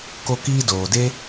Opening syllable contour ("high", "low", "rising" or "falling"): high